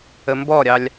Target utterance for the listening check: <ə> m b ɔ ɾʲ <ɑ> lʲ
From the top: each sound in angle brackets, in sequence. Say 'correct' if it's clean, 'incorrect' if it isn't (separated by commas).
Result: correct, correct